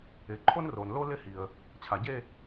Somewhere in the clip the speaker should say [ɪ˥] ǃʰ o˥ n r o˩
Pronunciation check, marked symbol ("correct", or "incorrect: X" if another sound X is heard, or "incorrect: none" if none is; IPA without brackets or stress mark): incorrect: ɪ˩˧